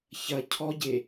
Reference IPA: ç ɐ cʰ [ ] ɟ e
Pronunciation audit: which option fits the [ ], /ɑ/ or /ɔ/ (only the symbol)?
ɔ